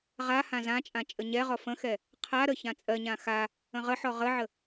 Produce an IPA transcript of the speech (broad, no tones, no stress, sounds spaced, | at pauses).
ʁ a h ã z ã t͡ʃʼ ã t͡ʃʼ ə ɲ ɛ ʁ ɔ f ə̃ x ɛ | qʰ a ɾ ə ç ã t͡sʼ ɜ ɲ ã x a | ə̃ ʁ ə ħ ɔ ʁ ə ʕ ə